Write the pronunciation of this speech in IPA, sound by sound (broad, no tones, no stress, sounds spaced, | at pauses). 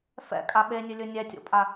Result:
f ɛ̰ kʼ a ɓ e nʲ ɵ lʲ ɵ nʲ ɛ tʲ o̰ pʼ a